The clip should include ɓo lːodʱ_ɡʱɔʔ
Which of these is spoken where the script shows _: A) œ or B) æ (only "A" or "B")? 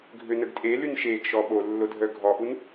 A